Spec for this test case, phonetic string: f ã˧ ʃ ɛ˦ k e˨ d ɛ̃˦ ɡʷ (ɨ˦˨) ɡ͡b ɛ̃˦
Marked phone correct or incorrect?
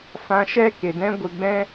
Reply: incorrect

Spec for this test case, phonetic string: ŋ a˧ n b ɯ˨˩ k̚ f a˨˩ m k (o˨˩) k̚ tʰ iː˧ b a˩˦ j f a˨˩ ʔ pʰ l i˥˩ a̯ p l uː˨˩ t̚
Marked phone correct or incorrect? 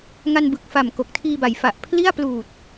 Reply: correct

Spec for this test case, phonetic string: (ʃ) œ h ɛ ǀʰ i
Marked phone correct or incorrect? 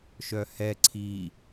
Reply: correct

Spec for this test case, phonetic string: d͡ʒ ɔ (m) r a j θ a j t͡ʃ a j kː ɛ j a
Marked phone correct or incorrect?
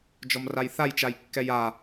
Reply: correct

